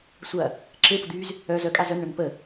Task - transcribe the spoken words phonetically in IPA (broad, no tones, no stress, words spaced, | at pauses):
sʷɐ | ǁʰepʊd̪yːz | œz œkʼaz œnɳœn pə